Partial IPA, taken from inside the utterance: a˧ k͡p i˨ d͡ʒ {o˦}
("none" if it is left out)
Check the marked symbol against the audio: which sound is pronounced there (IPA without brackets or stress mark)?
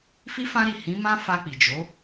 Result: o˨˦